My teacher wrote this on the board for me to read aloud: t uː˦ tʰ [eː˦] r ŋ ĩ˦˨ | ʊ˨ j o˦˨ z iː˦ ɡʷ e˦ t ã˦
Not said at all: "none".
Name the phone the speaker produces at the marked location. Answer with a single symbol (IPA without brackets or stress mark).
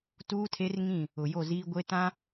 e˦